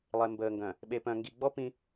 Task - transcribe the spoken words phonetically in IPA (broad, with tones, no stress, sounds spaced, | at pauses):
lˠ e˨ m b əː˨ ŋ ɡ œ̃˨ | ɓ e˨ p œ̃˨ ŋ ɡ i˨ ɡ͡b ɔ˦ p ĩ˦